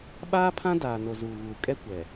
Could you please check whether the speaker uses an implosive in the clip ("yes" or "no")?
yes